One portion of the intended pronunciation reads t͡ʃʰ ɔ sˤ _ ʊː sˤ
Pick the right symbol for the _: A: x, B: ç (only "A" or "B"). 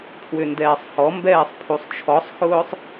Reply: A